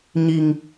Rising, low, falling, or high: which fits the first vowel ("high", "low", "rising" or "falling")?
low